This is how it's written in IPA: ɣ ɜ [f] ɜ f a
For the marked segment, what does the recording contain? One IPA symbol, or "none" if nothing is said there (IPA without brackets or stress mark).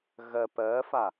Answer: p